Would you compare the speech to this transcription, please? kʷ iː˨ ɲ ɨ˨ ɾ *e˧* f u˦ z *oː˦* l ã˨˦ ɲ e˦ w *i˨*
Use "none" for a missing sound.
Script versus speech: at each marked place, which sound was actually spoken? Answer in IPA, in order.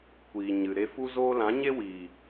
e˧, oː˦, iː˨

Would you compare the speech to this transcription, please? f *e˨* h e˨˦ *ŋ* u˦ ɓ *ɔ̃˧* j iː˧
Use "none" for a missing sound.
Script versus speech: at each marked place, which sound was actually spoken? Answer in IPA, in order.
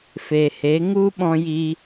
e˨, ŋ, ɔ̃˧

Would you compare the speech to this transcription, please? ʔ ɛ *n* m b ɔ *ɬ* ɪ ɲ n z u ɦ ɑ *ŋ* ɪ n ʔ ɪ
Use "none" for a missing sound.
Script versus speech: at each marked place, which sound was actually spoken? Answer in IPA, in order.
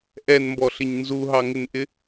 n, ɬ, ŋ

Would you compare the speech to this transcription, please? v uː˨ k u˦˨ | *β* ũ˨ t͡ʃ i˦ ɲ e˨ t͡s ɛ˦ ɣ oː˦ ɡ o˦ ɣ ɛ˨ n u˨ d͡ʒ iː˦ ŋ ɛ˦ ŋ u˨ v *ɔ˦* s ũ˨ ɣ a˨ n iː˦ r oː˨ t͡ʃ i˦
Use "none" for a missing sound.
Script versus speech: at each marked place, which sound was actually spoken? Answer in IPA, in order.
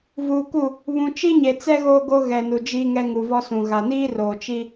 β, ɔ˦

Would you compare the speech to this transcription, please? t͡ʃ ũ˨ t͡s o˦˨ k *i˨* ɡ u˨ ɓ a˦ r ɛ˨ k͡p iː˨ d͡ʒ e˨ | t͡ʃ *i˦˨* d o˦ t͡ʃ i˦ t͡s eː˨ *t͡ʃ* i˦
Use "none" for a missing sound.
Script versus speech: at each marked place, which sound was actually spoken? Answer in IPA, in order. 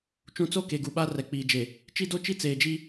e˨, i˦, d͡ʒ

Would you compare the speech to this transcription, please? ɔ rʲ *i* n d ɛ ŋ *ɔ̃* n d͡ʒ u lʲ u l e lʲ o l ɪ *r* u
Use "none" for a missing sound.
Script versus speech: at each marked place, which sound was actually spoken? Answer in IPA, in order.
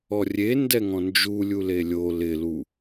e, ɔ̃, l

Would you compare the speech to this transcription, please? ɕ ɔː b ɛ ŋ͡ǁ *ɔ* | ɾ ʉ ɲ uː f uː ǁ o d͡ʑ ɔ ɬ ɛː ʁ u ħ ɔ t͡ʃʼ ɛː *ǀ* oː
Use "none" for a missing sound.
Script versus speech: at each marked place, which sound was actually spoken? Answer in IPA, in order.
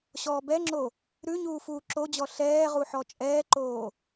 o, ǃ

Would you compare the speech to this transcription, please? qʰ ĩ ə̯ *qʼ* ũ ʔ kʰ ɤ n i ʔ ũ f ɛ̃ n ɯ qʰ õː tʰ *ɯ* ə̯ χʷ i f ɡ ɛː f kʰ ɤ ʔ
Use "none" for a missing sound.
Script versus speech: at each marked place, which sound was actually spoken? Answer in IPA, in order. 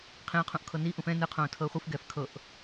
qʰ, ɤ

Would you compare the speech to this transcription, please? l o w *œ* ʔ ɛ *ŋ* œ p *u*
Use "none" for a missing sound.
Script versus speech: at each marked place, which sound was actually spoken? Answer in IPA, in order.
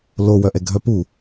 œ, ɡʱ, u

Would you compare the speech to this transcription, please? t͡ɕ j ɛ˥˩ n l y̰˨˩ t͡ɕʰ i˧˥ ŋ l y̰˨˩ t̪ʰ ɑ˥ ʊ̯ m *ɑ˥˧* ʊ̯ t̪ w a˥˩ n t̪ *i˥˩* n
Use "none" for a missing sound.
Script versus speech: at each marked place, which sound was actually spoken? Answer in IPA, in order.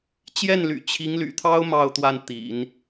ɑ˥˧, ḭ˨˩˦

